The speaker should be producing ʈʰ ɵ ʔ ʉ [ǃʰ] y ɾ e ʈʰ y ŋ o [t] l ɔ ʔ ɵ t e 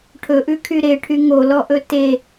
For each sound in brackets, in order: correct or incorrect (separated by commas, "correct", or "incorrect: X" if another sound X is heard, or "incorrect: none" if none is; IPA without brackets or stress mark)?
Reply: incorrect: kʰ, incorrect: none